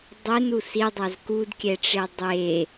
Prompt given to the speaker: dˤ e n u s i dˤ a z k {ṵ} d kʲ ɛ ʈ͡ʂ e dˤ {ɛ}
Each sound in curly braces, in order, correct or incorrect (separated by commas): incorrect, incorrect